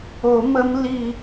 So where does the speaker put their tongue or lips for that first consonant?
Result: lips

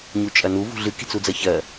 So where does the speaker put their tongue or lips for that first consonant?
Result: palate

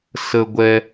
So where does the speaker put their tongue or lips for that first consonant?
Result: tongue tip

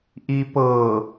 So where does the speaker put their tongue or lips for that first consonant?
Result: throat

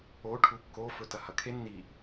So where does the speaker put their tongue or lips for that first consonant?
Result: retroflex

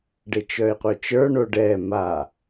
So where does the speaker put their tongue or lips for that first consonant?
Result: retroflex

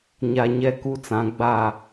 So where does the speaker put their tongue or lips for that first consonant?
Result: palate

